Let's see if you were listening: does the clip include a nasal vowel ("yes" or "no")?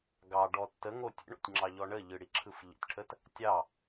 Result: no